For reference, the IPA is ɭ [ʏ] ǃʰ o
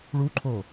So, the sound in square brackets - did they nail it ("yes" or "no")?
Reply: no